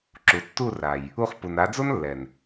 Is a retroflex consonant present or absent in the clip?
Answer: absent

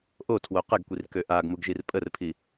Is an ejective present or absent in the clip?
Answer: present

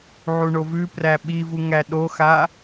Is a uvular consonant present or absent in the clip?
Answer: absent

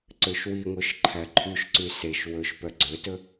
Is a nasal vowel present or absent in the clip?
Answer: absent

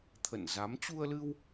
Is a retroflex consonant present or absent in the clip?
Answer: absent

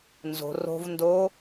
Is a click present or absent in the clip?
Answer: absent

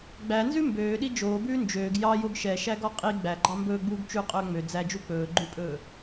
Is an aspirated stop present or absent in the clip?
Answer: absent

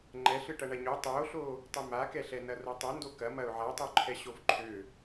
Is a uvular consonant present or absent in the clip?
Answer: absent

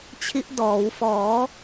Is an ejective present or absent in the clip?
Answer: absent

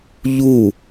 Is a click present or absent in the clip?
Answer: absent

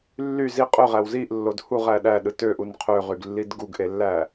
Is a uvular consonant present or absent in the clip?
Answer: present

